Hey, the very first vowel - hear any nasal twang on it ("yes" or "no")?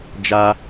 no